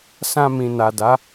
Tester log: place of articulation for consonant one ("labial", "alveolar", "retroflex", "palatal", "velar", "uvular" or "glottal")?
alveolar